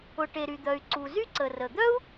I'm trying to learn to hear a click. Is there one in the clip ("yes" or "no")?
yes